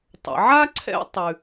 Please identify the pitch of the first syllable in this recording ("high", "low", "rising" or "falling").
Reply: low